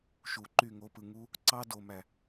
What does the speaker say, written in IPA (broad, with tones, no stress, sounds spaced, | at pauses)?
ʃ u˨ ǃ y˦˨ ŋ o˧ p ɯ˨ ŋ u˦ | ǀ ɑ˦ d o˨ m æ˨